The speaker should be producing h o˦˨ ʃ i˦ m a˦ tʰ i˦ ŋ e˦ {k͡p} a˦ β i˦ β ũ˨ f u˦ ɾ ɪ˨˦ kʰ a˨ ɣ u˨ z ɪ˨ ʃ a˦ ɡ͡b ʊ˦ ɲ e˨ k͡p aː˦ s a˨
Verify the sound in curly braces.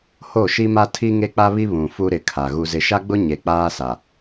correct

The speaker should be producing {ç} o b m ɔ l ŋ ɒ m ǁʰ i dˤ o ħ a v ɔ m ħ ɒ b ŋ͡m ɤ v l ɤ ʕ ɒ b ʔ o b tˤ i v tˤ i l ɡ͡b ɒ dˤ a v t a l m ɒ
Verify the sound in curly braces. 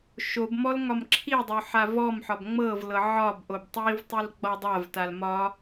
incorrect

